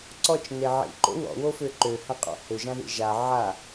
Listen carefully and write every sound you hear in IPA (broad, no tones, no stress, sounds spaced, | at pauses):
ǀ ɔ t͡ʃ n e ʕ ḭ ǃ o̰ w ɔ̰ w o f ø ǃ ø h ã qʼ ɔ̰ h ø ʒ ã ð ḭ ʒ a ʕ a